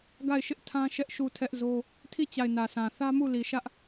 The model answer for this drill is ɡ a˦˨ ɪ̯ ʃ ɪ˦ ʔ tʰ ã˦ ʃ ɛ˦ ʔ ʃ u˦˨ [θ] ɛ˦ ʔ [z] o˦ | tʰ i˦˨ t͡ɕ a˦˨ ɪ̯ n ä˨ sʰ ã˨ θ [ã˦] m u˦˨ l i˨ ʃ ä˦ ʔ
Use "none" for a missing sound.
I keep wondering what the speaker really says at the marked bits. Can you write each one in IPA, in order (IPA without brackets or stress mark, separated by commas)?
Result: tʰ, z, ä˦